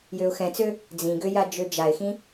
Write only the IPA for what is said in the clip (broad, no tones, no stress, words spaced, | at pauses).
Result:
jøʊ̯xɛ̃t͡sø | d͡zĩɡøja d͡ʒød͡ʒaɪ̯xĩ